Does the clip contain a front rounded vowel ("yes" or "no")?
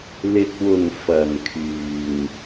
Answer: yes